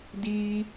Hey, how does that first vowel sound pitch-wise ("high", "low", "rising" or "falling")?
high